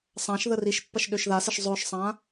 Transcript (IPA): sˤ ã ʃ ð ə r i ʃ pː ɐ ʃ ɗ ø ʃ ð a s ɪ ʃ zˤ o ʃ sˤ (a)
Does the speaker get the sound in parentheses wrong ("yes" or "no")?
yes